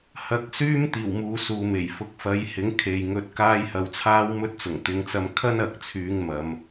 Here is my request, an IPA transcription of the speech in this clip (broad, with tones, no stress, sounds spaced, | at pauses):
h ɐ˧ k̚ s yː˥ m t̪ iː˨˩ w m uː˨˧ s uː˨ m e˨˩ j f ʊ˨˥ k̚ f ɐ˨˥ j h ɪ˨˥ ŋ kʰ e˨ j ŋ ɵ˧ t̚ k aː˥ j h ɐ˧ w t͡sʰ aː˥ w m ɵ˥ t̚ t͡s ʊ˨˩ ŋ t̪ ɪ˨˧ ŋ t͡s ɐ˧ m kʰ ɐ˥ n ɐ˨ k̚ t͡sʰ yː˨˧ ŋ m ɐ˨˧ m